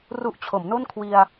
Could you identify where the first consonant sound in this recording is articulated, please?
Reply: alveolar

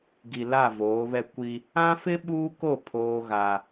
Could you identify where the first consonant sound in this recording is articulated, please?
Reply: velar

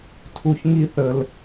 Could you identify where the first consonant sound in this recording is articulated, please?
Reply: alveolar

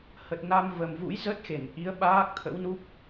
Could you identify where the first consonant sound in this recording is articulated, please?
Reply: glottal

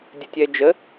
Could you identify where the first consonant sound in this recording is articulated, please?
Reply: alveolar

